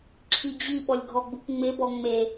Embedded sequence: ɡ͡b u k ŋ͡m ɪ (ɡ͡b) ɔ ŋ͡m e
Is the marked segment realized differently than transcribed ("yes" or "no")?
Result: yes